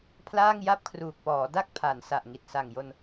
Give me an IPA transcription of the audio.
pʰ l aː˥˩ ŋ j a˥˩ p̚ kʰ r uː˨˩ k̚ p ɔː˩˦ d a˥˩ k̚ pʰ a˩˦ n s a˨˩ ʔ ŋ i˨˩ t̚ s a˨˩ ŋ j o˧ n

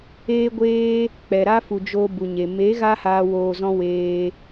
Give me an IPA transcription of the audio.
eː˧ ɡʷ eː˧ | k͡p ɛ˨ ɾ a˦ f u˨ d͡ʒ o˧ b u˨ ɲ e˨ m e˨˦ ɣ a˧ h aː˧ w oː˧ z ɔ̃˦ w eː˧

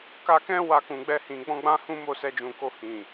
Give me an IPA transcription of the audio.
k a˧ k ɛ̃˦ w a˧ k ũ˨ ɡ͡b ɛ˧ h ĩ˨ ɡ͡b ɔ̃˧ ɡ͡b ã˦ h ũ˦ m o˦˨ s ɛ˧ d͡ʒ ũ˨ k o˧ h ĩ˨

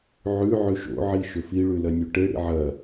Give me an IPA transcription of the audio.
ʕ ʉ ʕ ʉ ʃ o̰ ʕ i ʃ ɵ f i ɭ ʉ l ɐ nʲ o ʈ e ɽ ḭ ʕ ɐ

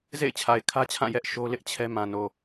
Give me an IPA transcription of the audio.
z ḛ˦˨ ɪ̯ t͡ɕʰ a˨ ɪ̯ kʰ ä˦ t͡ɕʰ ã˦˨ j ɛ˦ ʔ ʃ o˦ l ɪ˦ ʔ t͡ɕʰ ɛ˦ m ã˨ n o˨

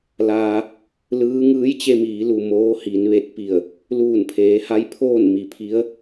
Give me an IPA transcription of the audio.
l aː˧ | l ɯː˧˥ ŋ ɯː˧˥ j t͡ɕ e˧ m iː˩˧ l u˩ m oː˧˥ h i˩˧ n ʋ e˧ t̚ p i˧˩ ə̯ | l uː˧˩ n pʰ eː˩˧ h a˧˥ j pʰ oː˥˨ n m i˩ pʰ i˧˥ ə̯

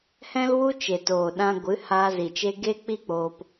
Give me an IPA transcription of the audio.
h ɛ̃˦ l w u˦ t͡ʃ e˨ t oː˨ ɗ ã˧ ɡʷ ɨ˨˦ h aː˧ z i˨ t͡ʃ e˧ ɡ e˦ k͡p i˦ k͡p oː˧ p

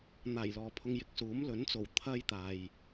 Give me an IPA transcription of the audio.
n̪ aː˨˩ j l ɔː˨ pʰ ʊ˧ ŋ j ɪ˨ k̚ s uː˨˥ m l ɵ˨˥ n t͡s o˨˩ w t̪ʰ ɐ˧ j t̪ aː˨ j

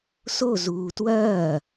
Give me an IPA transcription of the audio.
s o z uː t w ɐː

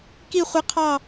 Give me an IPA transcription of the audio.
k i˥˧ χʷ ɪ˦˥ qʰ ɑ˥˧

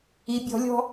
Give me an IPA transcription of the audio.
i bʲ ɔ̤ lʲ ɔ̤

